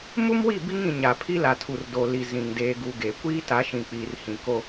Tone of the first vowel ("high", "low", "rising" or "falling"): high